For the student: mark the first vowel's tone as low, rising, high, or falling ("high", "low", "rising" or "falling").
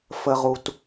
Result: low